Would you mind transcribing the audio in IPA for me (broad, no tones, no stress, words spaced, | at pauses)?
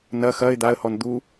nɐ xɐɪ̯ d̪aə̯hɔn d̪u